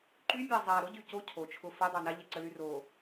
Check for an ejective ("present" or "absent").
absent